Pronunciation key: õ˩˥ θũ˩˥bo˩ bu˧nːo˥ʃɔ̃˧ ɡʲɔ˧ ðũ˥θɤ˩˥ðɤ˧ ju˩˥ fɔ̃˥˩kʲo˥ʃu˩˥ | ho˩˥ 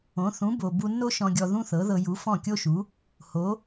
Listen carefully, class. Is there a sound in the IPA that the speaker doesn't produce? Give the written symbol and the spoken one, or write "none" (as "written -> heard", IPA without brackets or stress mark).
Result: none